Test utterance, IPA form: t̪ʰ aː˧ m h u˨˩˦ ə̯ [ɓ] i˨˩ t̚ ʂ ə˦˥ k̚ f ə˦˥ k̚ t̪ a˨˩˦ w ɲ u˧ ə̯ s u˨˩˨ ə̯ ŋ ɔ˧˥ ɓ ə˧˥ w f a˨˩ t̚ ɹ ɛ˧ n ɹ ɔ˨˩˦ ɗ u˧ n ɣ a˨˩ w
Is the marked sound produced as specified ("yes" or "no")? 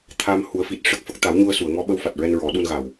no